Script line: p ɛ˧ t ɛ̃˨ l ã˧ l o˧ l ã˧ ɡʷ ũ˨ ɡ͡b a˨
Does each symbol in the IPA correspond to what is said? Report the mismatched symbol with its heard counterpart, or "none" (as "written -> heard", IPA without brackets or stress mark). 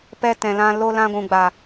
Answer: none